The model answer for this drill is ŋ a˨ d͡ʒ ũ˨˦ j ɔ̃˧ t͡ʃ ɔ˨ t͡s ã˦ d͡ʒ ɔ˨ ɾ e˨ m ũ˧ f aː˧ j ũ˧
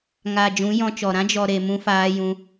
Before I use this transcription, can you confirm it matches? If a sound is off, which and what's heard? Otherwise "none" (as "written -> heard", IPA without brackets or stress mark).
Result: t͡s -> ɾ